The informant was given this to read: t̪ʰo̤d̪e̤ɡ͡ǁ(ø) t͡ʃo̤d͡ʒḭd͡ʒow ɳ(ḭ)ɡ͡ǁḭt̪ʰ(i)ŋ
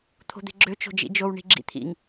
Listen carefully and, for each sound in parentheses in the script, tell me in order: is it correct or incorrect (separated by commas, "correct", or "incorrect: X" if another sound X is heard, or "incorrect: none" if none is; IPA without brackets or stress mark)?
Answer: correct, incorrect: i̤, incorrect: ḭ